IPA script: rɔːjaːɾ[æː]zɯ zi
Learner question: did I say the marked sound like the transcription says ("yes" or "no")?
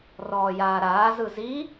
no